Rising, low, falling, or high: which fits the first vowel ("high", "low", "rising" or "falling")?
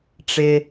low